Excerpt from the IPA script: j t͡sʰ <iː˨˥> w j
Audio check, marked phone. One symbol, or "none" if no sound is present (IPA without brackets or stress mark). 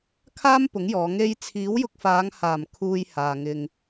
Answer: iː˨˥